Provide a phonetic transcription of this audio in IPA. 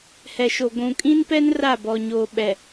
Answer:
hɛ˨ʃo˨ ɡʷũ˨kʼĩ˦npɛ˦n ra˦˨ bɔ˨ ɲoː˨ɓɛ˨

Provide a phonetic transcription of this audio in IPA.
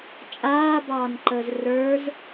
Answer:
t͡ʃʼaːbɑːnǃəːz rə˞z

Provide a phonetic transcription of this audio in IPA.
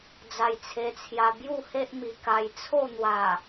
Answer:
d͡za˧jt͡sʰe˧t͡sʰja˧ bju˥˧he˦ʔmi˨˩ ka˧j t͡sʰo˥˧n̪wa˨˩

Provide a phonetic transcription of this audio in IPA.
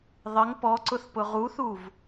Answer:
ðˤɪŋ pɔǀʊθ pʊʁuθuv

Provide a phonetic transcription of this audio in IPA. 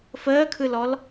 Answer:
fəːkʰɯlɔl

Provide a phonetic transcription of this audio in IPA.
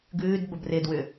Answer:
ɡʉːdbəb rɪdwʏ

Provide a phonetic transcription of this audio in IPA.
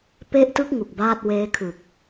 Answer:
pe˦˥ʔtɯ˦˥k̚ ŋu˨˩k̚baː˥˩t̚weː˦˥kʰɯ˨˩k̚

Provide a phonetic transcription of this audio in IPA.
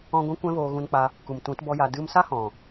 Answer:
ɔ̃˦ ɡʷĩ˦kʷɛ̃˦voː˧ ɣũ˧nk͡pa˧ | ku˨mtũ˨˦t bɔ˦ja˧ dɨ˧msa˦ hɔ̃˨

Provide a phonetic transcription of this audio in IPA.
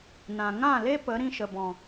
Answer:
nã˨ŋã˦˨le˦ pə˨˦ ɾĩ˧ʃə˨bɔ̃˨

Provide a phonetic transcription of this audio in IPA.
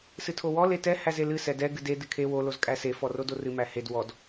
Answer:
sɨtʰowɔ letɛ hæzelɨ sɛdɛ ɡɨde dɨkʰe wo lozkʼæse fɔrodorɨ mæhed wɔd

